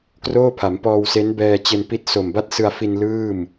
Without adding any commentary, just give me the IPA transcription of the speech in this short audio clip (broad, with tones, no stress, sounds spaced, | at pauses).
k r oː˥˩ pʰ a˩˦ m p ɔː˧ w s e˦˥ n b ɛː˧ t͡ɕ e˧ n p i˦˥ t̚ s o˨˩ m b a˥˩ t̚ s ɯ˧ a̯ f i˧ n l ɯː˥˩ m